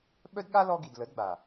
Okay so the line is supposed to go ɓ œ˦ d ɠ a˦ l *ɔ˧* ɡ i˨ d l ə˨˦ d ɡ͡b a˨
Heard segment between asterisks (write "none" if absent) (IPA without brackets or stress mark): ɔ˧